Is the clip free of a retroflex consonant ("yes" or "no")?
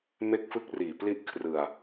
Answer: yes